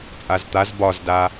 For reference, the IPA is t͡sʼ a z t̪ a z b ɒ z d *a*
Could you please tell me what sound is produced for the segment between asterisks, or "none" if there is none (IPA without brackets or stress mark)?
a